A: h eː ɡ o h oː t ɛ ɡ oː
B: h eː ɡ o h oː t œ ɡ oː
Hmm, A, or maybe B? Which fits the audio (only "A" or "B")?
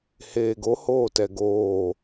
A